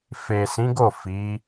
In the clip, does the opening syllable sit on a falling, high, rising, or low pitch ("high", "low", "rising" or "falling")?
low